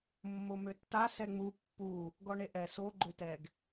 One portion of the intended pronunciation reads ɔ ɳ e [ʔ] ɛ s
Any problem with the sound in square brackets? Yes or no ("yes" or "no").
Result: no